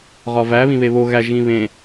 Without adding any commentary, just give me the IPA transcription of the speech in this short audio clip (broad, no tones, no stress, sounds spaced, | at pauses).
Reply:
ʁ ɒ v æ β ĩ β e β o ɣ æ ʒ ɣ ĩ β ẽ